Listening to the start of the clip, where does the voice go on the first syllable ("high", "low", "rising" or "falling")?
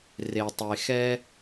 low